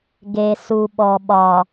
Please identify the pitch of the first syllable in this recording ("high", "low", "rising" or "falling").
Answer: low